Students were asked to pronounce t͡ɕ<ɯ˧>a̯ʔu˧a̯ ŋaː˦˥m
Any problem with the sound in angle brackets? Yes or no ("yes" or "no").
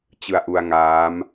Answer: no